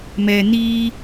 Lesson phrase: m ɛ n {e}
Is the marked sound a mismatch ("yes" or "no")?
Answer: yes